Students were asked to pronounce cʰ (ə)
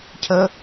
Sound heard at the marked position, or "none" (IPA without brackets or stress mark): ə